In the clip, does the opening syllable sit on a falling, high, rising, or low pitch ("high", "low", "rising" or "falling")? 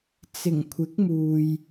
low